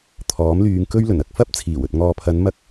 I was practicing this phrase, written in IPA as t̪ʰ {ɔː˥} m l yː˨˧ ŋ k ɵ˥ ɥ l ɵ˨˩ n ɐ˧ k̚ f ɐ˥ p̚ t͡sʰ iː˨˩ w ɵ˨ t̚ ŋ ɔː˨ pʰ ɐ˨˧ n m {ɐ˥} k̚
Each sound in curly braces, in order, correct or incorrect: incorrect: ɔː˨˥, correct

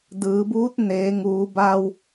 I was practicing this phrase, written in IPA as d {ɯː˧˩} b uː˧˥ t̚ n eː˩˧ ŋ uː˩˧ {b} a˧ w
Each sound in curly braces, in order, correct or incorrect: incorrect: ɯː˩˧, correct

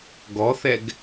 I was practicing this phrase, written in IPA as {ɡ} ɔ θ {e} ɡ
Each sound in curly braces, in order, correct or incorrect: correct, incorrect: ɛ

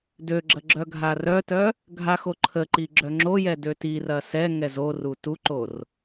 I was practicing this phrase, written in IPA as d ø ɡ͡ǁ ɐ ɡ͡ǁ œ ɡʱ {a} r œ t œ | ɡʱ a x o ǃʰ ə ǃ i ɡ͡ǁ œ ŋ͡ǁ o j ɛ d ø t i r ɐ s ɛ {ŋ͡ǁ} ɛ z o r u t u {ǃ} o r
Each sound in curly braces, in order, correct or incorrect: correct, incorrect: ŋ, correct

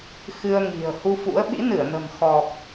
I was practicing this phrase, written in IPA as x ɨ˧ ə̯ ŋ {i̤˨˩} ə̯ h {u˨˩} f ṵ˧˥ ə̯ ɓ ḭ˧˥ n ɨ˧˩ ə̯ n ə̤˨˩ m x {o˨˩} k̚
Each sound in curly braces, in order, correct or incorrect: correct, incorrect: u˧, incorrect: ɔ˨˩

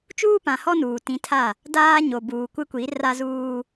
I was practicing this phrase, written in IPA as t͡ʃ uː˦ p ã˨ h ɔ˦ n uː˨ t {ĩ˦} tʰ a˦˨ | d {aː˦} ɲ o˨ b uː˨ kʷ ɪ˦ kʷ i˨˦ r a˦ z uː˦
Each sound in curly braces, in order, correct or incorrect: incorrect: ĩ˨˦, correct

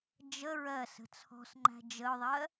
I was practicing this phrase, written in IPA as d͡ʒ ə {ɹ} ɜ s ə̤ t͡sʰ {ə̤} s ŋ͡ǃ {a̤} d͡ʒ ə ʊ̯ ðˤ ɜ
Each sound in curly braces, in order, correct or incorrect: correct, incorrect: ɔ̤, incorrect: æ̤

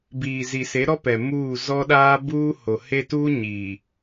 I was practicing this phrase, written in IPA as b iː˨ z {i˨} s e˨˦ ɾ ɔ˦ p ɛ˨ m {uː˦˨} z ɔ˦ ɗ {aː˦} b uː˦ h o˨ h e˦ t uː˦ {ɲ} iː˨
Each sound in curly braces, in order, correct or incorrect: correct, correct, correct, correct

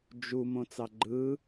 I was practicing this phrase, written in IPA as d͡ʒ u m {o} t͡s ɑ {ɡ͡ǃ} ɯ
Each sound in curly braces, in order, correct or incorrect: incorrect: õ, correct

